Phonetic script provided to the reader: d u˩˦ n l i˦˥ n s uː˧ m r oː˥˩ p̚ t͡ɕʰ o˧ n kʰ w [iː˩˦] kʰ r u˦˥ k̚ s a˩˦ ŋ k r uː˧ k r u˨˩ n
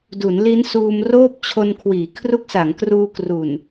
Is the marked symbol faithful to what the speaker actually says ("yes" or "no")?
yes